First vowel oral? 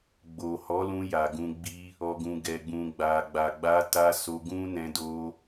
yes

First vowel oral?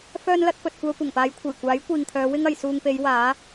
yes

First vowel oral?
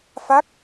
yes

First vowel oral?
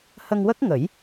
yes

